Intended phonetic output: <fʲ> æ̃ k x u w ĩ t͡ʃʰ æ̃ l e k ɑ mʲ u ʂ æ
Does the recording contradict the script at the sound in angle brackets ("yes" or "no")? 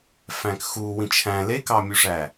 yes